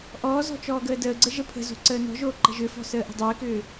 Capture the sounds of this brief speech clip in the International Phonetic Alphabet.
ʔɔːzɔ̤ t͡ʃɔːɡəːdəːɡ͡ǀə ʒəpʰə̤zo̤ ǀəːnɔ̤ʒoː ǃə̤ʒʏfɔ̤ səːʔə̤dˤʏːkʏː

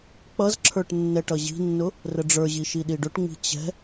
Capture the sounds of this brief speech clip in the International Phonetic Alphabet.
k͡pʌzǁʰə˞ʈ nːɛʈʌʑi̤nːʊ | rəɖ͡ʐə˞ʑi ʃiɗiɖʊʈŋ͡mi̤ t͡ɕɛ̤

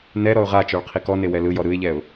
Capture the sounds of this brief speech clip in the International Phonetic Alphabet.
nɛ ɾɔʊ̯ʁat͡ʃɔɭ qʰikɔne wɛlɯjɔ ɾɯɪ̯ʎɛʊ̯

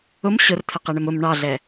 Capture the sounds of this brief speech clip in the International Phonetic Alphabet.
ʊm ɕʊrt̪ʰəqɛɳɪm ʊm ɳɑɮɛ

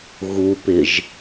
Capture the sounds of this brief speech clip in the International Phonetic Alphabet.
ɣupɪʒ

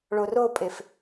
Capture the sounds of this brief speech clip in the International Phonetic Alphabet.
ɭoropʼef

